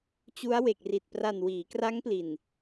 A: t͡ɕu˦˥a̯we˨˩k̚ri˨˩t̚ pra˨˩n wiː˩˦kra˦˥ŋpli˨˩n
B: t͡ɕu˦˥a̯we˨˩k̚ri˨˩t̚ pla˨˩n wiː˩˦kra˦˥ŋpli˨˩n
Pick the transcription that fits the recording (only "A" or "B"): A